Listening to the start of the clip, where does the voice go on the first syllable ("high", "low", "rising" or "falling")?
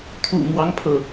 low